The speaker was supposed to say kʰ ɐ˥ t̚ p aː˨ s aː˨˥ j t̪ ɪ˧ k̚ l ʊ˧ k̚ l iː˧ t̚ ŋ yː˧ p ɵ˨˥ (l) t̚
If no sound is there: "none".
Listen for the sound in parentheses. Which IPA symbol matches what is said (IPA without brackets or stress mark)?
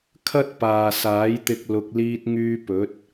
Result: none